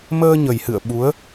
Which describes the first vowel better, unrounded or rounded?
unrounded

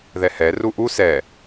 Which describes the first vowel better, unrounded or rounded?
unrounded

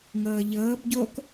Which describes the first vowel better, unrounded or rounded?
unrounded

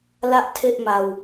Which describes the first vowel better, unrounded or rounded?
unrounded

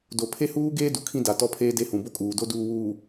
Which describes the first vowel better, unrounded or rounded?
rounded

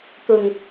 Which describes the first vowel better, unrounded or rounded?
rounded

